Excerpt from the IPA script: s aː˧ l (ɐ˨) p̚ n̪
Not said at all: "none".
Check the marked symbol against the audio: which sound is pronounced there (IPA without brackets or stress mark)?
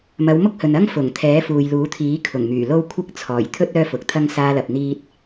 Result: ɐ˨